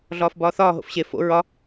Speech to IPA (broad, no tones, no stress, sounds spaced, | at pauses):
ɮ ɒː f b ɒː θ ɒː ɦ o̰ f ɕ e f o̰ ɹ ɒ